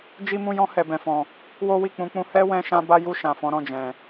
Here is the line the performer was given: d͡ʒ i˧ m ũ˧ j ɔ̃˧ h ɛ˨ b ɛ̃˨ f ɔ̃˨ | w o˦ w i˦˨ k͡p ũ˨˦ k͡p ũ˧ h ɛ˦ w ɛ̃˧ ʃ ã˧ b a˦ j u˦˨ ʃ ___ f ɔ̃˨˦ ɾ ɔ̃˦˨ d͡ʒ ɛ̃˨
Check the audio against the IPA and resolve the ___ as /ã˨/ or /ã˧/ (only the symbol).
ã˨